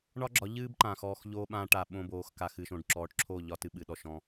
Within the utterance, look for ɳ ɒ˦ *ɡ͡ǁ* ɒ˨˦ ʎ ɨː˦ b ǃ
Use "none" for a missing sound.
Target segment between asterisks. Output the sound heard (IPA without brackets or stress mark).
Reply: ɡ͡ǁ